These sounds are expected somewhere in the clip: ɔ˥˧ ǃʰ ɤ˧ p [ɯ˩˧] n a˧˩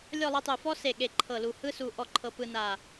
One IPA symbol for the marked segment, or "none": ɯ˧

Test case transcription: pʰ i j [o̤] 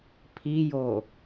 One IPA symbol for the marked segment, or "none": o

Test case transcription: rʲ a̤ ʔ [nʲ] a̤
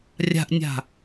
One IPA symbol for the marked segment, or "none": nʲ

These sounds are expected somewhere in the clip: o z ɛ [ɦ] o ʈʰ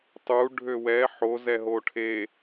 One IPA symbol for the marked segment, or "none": ɦ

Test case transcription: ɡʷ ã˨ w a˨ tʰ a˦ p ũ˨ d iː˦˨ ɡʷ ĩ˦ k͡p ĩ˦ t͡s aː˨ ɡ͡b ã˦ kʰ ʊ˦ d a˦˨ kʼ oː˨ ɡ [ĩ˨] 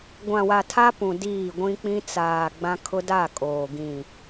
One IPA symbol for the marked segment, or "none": ĩ˨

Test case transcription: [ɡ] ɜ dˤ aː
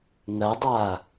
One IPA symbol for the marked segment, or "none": ŋ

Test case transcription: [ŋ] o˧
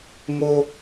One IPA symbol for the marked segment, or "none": ŋ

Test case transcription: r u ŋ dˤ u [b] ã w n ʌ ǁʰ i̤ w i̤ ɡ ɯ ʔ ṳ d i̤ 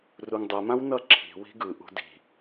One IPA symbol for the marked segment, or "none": m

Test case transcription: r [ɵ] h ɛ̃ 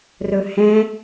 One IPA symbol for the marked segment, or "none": ɵ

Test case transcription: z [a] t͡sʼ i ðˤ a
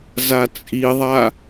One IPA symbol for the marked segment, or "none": a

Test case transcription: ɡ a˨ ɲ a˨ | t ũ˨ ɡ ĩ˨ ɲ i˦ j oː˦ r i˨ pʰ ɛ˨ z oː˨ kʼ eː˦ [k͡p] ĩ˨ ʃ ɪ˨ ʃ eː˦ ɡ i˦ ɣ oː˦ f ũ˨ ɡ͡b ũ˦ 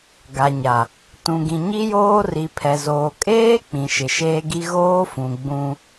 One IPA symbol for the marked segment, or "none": k͡p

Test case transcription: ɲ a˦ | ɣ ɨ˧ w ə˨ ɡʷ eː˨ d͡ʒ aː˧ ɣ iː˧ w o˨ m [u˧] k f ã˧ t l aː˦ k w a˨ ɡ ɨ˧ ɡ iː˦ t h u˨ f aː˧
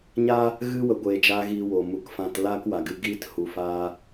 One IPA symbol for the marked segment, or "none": u˨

